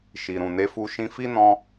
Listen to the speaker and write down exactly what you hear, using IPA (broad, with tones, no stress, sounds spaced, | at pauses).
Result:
ʃ i˨ ɾ ũ˨ n e˧ f u˧ ʃ ĩ˧ f i˦ n ɔ̃˧